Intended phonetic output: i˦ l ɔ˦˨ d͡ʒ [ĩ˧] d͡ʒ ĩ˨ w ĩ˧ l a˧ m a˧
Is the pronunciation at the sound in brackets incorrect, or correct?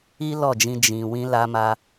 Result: correct